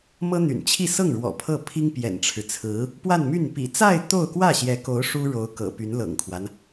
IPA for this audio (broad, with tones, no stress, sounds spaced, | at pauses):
m ɤ˥ n̪ y̰˨˩ n t͡ɕʰ i˥˧ s ɤ˥˩ ŋ ɻ w ɔ̰˨˩ pʰ ɤ˥˩ pʰ i˥ ŋ p j ɛ̰˨˩ n ʈ͡ʂʰ ɻ̩˦ t͡sʰ ɹ̩˧˥ | p w a˥˧ n m y˥˩ n p ḭ˨˩ t͡s a˥˧ ɪ̯ t̪ o˥˧ ʊ̯ k w ä˥˩ ɕ j ɛ˧˥ k o˧˥ ʊ̯ ʂ u˥ ɻ o˧˥ ʊ̯ k ɤ̰˨˩ p y˧˥ n l ɤ̰˨˩ ŋ kʰ w a˦ n